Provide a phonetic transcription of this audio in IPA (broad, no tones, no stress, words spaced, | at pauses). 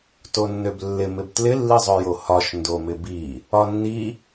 tonːøblːɪ mɪbtlɪ lːizˤøjohɒʃ ndomɪbi | ɒnːi